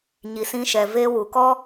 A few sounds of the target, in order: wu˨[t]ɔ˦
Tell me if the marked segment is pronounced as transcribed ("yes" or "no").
no